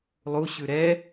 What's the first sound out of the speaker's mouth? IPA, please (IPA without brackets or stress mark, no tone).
lˠ